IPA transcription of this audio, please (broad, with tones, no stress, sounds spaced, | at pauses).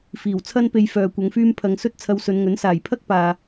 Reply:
f iː˨˩ w t͡sʰ ɐ˥ n p e˧ j f œː˨ kʷ ɐ˨˧ ŋ f yː˥ m pʰ ɐ˨˧ ŋ s ɵ˥ t̚ t͡sʰ ɐ˧ w s ɵ˨˧ n ŋ ɵ˨˥ n s aː˨˩ j pʰ ɐ˥ k̚ p aː˨